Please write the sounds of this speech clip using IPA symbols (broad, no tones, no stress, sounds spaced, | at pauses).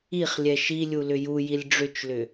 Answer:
i χ lʲ ɛ ʃ i lʲ u l ʏ j u j i lʲ ɖ͡ʐ ʏ t͡ʃ l ʏ